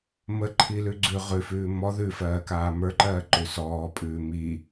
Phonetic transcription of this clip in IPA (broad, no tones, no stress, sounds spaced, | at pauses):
m ə ǃʰ i l ʉ ɡ͡ǀ ʉ ʁ ʉ f ʉː m ɔ ð ʉ f ɜː k aː m ə˞ ǃ ɜː ǃ ʉ s ɔː pʼ ʉː m iː